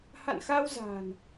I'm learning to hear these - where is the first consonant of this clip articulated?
throat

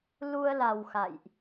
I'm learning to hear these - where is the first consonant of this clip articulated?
tongue tip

